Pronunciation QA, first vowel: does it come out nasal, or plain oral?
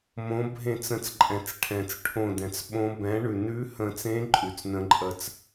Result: nasal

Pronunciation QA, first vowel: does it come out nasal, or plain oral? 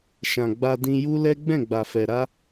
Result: nasal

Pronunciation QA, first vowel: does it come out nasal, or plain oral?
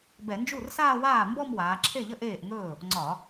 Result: oral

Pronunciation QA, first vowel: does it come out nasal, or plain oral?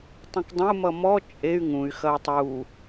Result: nasal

